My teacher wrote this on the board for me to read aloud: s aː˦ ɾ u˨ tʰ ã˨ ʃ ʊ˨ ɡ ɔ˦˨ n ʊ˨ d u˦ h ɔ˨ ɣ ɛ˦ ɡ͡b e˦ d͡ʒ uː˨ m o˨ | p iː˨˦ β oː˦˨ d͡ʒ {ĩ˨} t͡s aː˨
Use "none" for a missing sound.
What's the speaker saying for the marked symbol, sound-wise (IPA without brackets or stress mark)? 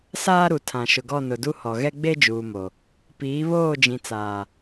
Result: ĩ˨